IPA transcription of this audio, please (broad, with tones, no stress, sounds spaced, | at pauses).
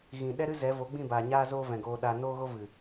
ɣ ĩ˨ ɗ ɛ˦ ɾ ɨ˦ z ɛ˨˦ v o˨˦ ɡ͡b ĩ˦˨ b aː˨ ɲ aː˦ z oː˦ v ɛ̃˨ ɡ oː˧ ɗ a˧ n oː˦ ɣ o˦ v ɨ˨